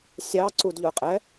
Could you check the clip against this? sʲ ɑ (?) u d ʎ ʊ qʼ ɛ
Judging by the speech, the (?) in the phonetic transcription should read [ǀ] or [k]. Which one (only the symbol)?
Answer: ǀ